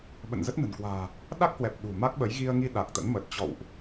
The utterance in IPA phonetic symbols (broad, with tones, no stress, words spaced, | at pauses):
ɓə̰˧˨nzə˦˥t̚nə̤˨˩nkwa̤ː˨˩ | ɗa˦˥k̚hwɛ˨˩p̚ ɗṳ˨˩ma˦˥k̚ɓə˨˦j ɣi˧ə̯ŋi˧ ɗa˨˩k̚t̪ə̰˧˥nmə˨˩t̚ t͡ɕɔ̰˧˨wʔ